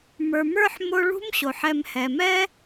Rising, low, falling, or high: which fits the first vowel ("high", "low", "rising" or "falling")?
low